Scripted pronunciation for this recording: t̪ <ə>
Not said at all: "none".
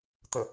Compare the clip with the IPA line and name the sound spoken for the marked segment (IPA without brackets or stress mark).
ə